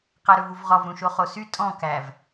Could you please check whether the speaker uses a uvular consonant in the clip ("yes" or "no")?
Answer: yes